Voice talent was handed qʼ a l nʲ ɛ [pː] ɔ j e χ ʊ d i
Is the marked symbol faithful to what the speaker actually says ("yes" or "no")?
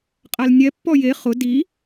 yes